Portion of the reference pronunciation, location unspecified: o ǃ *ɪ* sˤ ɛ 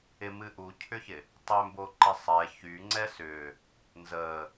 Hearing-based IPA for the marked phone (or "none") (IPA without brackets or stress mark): ɪ